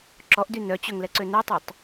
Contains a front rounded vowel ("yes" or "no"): yes